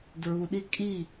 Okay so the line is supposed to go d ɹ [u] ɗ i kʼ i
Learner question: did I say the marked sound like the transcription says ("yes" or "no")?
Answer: yes